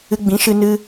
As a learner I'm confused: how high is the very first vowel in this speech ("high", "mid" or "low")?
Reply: high